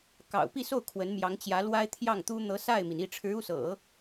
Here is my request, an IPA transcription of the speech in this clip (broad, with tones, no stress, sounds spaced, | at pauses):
k ɑ̰˨˩ ʊ̯ p i˥˧ s o˥˩ ʊ̯ kʰ w ə˧˥ n m j ɑ˧˥ ŋ t͡ɕ j ä˧˥ l w a˥ ɪ̯ t̪ʰ j ɑ˥˩ ŋ t̪ u˥ n̪ ɤ˧˥ s a˥˩ ɪ̯ m i˩ n i˥˩ ʈ͡ʂʰ ɻ̩˧˥ u˥˩ s ɤ̰˨˩˦